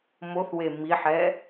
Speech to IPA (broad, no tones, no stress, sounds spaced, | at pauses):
m o θ w e m i ħ ɛ